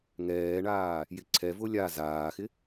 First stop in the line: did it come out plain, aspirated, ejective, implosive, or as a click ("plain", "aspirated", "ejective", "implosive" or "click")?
click